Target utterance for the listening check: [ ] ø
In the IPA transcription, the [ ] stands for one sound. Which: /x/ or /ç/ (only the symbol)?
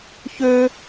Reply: ç